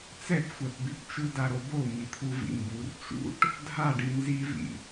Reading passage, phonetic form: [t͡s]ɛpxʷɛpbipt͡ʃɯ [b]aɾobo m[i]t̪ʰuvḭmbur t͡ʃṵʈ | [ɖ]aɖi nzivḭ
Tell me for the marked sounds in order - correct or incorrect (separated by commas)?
correct, incorrect, correct, incorrect